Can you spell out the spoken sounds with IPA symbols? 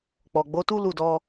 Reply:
k͡pɔ˨ɡ͡bo˨˦tu˦ lu˦˨dɔ˧

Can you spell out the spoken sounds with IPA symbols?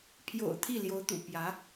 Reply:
pʰjo̰˨˩ʊ̯ t̪ʰi˥˩ljo˧˥ʊ̯t̪ṵ˨˩ pjä˧˥

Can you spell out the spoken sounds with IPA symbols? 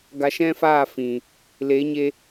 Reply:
ɡa˧ʃɛ̃˦faː˦˨ fĩ˨ | le˨˦ɲe˧

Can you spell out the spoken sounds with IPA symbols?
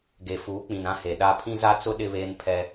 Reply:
ɡe˨ fuː˨˦k͡pĩ˨nã˦ he˨ɗa˦ pʰĩ˦za˦t͡sʊ˦ ɗɪ˦βeː˦npʰɛ˦

